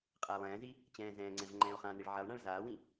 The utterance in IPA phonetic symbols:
qʼaːlˠɛ̃ːzi | t͡ɕɛ̃ːzɛ̃ːŋ͡ǀɛ̃v ŋ͡ǃɛ̃ːo̯χãniɭ ʕɛlˠɳãɭ zaːwĩ

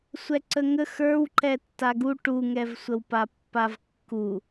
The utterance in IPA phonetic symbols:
sʷɛǀəŋə xə˞wǃɛ tːaɡu ʈuŋɛvsʷəwpa pːavkːu

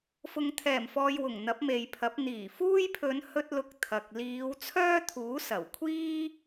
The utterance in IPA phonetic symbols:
fʊ˨ŋt̪ʰɛː˨˩mfɔː˨j wʊ˨˩ŋ n̪ɐ˨˥p̚me˨jpʰɐ˨˥p̚ n̪iː˨˩fuː˥j pʰɵ˨˧nhɵ˧t̚ lʊ˧k̚t̪ʰɐ˨k̚ liː˨˧w t͡sʰœː˥t̪ʰuː˨˥sɐ˨˩wkʷʰiː˥

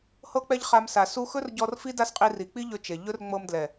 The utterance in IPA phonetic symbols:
hɤ˦k͡pɛ˦ʎ χa˧msa˨ su˧ xɵ˦rɟɔ˧r fi˦da˦sqʼi˧ ri˨ k͡pi˦ʎɵ˧ t͡ʃe˨ ʎɵ˦r ŋ͡mɤ˧mdlɛ˨

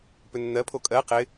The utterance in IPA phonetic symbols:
pʏnːɜ pʰokʼɜ qɪ

